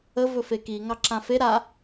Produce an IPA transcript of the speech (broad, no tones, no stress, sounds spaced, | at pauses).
ə v ɵ f e k i ŋ ɑ ǁ ã f e ɾ a